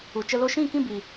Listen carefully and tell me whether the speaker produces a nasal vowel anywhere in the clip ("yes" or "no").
yes